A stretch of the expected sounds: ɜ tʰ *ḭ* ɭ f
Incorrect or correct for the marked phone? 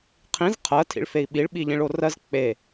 correct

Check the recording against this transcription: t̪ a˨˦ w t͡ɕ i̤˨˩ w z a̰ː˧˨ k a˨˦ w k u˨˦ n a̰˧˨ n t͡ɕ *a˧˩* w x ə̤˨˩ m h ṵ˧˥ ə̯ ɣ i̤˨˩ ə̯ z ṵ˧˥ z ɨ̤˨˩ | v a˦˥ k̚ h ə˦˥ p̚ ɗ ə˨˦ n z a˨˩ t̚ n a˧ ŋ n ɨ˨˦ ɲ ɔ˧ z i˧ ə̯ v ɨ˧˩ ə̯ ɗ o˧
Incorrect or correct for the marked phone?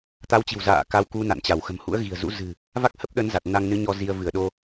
correct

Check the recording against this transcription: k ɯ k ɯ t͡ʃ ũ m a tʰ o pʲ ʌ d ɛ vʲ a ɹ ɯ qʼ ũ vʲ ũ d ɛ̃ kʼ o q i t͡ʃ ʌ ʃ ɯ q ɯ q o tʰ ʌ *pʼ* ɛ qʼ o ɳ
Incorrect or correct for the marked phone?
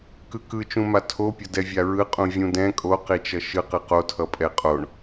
correct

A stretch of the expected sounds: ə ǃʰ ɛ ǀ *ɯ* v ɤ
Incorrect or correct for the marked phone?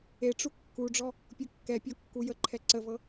incorrect: ə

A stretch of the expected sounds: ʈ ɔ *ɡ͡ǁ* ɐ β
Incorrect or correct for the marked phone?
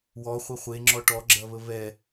correct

